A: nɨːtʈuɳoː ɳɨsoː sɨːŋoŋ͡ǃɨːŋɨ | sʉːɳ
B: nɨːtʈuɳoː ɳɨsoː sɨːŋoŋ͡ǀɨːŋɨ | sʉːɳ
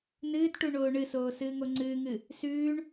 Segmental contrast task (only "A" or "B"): B